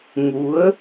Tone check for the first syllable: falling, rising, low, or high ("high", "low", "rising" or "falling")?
rising